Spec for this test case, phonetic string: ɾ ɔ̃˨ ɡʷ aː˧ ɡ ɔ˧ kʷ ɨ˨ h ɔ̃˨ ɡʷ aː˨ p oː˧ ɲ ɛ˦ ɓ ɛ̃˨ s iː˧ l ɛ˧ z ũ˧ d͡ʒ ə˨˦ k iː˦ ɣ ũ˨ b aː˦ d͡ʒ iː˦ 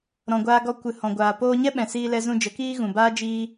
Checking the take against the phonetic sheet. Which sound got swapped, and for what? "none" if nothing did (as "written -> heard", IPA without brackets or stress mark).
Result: none